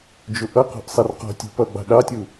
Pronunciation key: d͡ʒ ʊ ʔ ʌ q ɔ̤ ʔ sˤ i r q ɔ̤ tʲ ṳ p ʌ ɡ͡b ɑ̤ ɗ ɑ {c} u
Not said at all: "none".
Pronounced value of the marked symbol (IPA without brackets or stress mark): tʲ